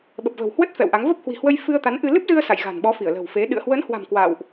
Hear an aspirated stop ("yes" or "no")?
no